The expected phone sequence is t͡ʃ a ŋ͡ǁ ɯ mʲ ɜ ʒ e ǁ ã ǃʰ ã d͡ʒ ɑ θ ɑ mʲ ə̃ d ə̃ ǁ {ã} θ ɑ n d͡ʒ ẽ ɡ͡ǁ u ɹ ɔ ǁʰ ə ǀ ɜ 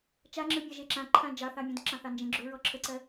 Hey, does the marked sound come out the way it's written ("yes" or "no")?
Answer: no